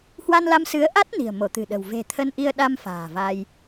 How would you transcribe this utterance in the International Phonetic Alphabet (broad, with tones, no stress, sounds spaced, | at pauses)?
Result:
h w a˧ n l a˧ m s ɨ˨˦ ə̯ ʔ a˦˥ t̚ n i̤˨˩ ə̯ m o˧˩ t̪ ɨ̤˨˩ ɗ ə̤˨˩ w v e̤˨˩ t̪ʰ ə˧ n ʔ i˧ ə̯ ɗ a˧ m f a̤ː˨˩ v a˧ j